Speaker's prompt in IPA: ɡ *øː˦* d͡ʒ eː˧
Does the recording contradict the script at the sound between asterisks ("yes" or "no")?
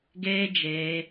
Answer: yes